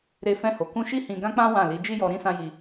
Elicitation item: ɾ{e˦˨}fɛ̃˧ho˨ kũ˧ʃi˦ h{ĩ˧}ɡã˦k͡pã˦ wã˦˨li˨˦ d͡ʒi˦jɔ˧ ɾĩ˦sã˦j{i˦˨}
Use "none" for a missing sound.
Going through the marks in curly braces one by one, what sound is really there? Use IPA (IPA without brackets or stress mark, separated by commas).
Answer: e˧, ĩ˧, i˧